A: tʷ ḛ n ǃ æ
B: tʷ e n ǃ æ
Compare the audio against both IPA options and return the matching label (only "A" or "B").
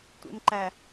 A